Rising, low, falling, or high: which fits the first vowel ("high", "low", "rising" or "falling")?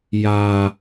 high